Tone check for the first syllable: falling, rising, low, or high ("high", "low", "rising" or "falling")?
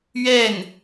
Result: falling